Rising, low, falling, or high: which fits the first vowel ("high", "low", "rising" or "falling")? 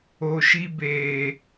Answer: low